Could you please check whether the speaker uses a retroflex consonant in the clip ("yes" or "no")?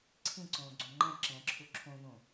no